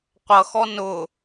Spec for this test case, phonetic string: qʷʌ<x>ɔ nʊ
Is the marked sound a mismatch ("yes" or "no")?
no